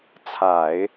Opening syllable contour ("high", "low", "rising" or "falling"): low